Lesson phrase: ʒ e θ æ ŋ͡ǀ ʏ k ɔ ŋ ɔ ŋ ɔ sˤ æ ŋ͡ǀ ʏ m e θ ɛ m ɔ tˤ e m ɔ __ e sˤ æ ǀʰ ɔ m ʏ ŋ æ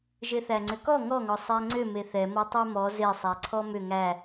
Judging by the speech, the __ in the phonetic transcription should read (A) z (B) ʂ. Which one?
A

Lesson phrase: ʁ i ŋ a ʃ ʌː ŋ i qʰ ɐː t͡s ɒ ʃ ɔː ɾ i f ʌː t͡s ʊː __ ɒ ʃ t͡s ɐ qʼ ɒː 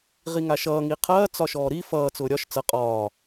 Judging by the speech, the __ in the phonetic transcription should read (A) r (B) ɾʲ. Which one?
B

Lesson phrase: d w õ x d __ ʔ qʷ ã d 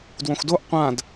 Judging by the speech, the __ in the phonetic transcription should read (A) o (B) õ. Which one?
A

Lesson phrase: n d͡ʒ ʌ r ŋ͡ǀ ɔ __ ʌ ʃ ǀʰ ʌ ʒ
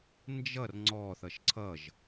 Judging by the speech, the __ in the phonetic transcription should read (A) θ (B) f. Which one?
A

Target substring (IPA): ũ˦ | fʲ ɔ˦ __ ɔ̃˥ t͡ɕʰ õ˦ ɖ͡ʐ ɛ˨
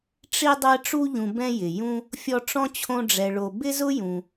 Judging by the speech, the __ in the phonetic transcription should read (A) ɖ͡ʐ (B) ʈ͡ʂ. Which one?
B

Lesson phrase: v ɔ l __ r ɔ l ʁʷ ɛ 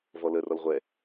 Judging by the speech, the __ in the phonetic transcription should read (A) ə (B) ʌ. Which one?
A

